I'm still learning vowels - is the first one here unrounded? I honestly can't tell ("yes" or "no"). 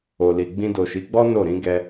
no